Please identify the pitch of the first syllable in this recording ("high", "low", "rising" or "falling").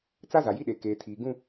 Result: high